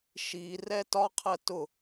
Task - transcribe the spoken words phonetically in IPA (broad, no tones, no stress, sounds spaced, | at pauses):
ʃ i r ɛ t ɒ qʰ ɜ t ʊ